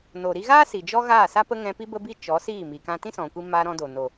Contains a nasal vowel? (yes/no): yes